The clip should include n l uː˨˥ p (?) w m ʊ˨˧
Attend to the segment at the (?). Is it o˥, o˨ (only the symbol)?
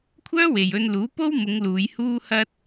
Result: o˥